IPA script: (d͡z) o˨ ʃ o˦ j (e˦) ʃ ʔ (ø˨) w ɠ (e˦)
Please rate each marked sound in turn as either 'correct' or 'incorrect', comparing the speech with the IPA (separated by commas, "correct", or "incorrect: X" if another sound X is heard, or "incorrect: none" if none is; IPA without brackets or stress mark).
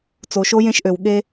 incorrect: t͡s, incorrect: ẽ˦, correct, correct